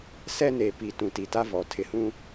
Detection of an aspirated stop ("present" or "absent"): present